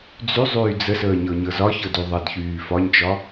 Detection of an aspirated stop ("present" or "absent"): absent